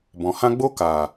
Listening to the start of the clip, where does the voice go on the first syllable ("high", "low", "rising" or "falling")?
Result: low